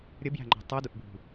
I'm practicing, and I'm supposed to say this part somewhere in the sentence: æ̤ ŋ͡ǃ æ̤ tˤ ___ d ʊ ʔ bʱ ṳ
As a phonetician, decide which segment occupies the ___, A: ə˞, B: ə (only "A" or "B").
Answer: A